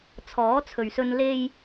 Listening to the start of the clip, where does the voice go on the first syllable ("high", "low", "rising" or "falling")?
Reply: rising